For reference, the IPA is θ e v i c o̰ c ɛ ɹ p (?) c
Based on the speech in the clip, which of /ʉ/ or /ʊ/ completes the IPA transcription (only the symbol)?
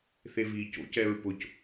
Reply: ʊ